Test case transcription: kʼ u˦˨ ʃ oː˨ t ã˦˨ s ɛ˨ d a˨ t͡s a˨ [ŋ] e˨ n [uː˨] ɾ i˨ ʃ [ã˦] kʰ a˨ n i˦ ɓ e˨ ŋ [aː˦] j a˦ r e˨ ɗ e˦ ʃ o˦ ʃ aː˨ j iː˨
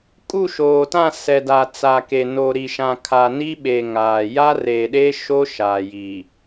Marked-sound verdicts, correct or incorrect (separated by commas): incorrect, incorrect, incorrect, incorrect